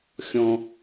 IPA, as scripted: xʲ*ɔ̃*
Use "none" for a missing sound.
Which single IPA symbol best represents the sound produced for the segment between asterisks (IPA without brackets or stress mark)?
ɔ̃